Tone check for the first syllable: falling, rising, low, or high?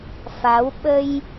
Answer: rising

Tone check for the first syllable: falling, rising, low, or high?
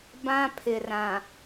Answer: high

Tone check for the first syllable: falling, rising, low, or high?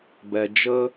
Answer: low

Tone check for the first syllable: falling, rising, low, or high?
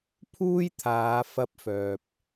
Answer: high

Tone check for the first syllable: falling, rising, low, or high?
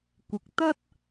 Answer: rising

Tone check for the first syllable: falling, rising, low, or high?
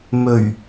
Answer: low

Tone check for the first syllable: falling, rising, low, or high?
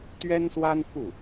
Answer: high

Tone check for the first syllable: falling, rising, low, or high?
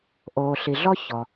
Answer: low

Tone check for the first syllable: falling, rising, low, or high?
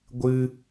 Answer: high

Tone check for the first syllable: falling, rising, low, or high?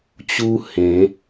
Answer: high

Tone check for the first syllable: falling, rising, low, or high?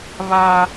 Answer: high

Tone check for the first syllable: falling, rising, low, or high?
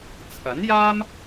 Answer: rising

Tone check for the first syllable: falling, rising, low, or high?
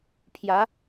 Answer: rising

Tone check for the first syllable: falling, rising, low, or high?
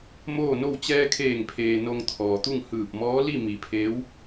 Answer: falling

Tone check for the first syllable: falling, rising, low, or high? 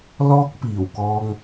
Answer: high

